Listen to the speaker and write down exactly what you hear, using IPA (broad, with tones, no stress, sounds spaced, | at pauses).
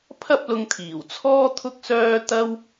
pʰ ɐ˥ p̚ l ʊ˧ ŋ t̪ʰ iː˨˩ w t͡sʰ ɔː˥ t̪ʰ ʊ˥ k̚ s œː˥ t̪ ɐ˥ w